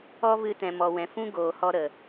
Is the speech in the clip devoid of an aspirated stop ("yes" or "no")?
yes